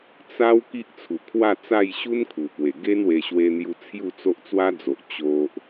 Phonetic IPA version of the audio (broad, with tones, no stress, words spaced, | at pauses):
t͡sa˦w ki˦ʔt͡sʰu˨˩kʰwa˥˧t͡sa˥˧j ɕu˦n kʰu˨˩pwe˨˩ɡe˦nwe˧ ɕwe˧n̪ju˧ t͡sʰju˥˧t͡so˦ʔ t͡swa˦d͡zo˨ʔ t͡ɕo˦ʔ